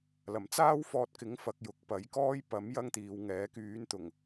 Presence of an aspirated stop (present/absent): absent